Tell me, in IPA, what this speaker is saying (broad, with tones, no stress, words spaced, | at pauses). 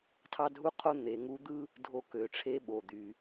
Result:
tʰɑ˥dʱu˥qʰo˥ n̪e˩˧ŋu˧˥ d̪ɯ˥ | dʱo˧kø˩˧ʈ͡ʂʰe˧˥ ɓo˩d̪y˩